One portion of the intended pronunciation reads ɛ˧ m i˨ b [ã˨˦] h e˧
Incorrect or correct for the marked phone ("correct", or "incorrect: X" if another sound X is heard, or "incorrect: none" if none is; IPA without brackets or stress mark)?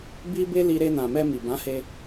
correct